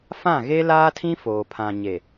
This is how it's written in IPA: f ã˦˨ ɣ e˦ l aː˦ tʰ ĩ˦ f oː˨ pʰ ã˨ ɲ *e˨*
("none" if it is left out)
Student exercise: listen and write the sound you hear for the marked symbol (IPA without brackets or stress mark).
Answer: e˨